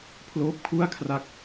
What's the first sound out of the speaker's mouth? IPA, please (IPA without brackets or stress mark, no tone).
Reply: pʰ